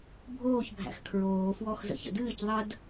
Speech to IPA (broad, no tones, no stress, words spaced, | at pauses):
bʱoːçbʱæ̰x kʰɹoːfwɔx zə̰çə̰dɨːc ðˤəd